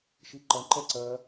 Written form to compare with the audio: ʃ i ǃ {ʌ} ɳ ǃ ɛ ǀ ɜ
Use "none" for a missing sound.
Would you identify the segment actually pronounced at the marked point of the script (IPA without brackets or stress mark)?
ʌ